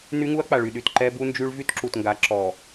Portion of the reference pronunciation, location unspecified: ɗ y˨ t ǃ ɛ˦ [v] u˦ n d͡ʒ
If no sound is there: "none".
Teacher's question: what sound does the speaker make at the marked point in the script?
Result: b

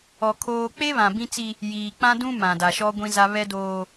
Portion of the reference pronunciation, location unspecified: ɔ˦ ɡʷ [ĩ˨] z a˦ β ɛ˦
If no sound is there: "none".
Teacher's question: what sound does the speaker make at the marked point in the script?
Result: ĩ˦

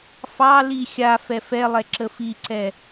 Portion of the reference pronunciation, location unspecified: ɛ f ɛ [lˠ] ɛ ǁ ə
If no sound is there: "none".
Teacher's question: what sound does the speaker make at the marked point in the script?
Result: lˠ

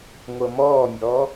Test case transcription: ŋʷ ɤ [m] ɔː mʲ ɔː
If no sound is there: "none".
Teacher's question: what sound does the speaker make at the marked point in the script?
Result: m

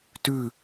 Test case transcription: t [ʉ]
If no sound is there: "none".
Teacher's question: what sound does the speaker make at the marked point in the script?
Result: ʉ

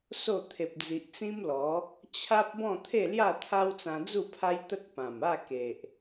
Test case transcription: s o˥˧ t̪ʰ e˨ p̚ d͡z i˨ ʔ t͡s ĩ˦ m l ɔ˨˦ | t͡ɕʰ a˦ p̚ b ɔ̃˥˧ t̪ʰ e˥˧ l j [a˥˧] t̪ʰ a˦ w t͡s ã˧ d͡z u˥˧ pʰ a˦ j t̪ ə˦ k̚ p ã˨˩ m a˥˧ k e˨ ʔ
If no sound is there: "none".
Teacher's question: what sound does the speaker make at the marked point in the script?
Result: a˥˧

